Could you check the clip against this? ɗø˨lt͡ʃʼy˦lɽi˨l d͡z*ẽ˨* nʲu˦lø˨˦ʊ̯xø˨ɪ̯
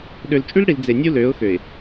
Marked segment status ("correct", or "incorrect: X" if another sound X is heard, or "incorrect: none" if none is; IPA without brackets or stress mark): incorrect: e˨